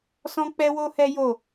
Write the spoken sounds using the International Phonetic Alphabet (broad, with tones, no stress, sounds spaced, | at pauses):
s ɔ̃˦ k͡p ɛ˦ w o˦ h ɛ˦ j o˦˨